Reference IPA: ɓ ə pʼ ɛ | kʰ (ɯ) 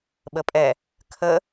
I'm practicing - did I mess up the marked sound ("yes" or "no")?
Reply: yes